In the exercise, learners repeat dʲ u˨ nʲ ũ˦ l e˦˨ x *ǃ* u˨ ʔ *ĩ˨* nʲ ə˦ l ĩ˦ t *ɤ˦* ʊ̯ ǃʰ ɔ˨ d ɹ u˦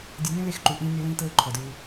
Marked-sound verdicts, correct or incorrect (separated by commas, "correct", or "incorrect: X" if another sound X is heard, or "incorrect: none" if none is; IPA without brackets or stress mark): correct, correct, correct